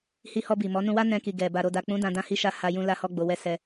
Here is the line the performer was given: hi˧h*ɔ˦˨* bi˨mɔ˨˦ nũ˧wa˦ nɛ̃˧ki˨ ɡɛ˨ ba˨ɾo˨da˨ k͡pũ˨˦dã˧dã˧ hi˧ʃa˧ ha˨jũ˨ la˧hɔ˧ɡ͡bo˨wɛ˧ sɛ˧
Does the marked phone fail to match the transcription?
yes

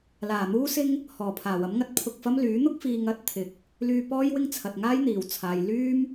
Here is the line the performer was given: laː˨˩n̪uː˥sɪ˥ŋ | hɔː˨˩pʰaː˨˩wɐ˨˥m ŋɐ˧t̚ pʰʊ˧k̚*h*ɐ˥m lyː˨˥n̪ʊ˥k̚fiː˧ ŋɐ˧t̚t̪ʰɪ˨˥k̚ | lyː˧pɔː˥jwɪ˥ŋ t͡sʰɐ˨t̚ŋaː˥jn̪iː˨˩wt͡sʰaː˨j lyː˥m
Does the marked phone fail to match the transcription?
yes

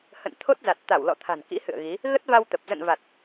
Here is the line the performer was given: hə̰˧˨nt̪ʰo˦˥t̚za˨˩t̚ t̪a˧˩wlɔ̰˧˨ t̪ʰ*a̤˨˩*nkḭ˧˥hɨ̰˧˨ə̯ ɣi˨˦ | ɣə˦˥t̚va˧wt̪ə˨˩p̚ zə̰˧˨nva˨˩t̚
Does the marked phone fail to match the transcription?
no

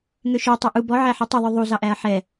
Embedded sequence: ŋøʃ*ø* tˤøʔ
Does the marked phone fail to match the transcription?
no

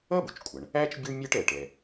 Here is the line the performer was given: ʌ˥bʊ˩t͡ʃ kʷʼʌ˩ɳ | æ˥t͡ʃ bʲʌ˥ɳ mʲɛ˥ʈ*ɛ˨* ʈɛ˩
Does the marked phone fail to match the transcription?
no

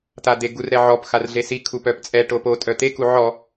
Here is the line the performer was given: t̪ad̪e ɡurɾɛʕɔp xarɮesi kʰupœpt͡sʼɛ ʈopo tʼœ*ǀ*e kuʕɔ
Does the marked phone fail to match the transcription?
yes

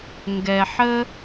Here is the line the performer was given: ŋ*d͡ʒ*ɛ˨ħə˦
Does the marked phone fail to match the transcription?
yes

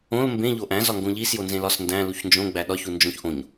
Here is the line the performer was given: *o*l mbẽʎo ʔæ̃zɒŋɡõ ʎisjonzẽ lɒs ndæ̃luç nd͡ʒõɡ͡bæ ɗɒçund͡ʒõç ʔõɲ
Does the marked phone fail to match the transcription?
yes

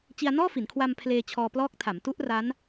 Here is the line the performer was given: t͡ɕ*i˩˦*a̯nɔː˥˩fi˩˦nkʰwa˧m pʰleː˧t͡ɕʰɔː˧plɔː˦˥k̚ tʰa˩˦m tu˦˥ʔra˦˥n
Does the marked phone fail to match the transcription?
yes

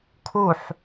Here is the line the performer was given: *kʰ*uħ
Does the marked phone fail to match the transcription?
no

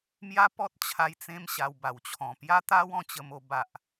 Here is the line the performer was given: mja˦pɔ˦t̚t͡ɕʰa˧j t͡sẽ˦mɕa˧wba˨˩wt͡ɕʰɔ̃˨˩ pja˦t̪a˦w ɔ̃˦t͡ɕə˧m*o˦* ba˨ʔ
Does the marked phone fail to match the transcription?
yes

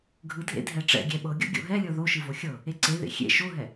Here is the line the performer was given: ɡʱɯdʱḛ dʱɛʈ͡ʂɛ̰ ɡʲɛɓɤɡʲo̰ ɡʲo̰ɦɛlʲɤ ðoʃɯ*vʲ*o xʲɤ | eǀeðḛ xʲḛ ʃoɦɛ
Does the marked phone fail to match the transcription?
yes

